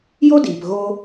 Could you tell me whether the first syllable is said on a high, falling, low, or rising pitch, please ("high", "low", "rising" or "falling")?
high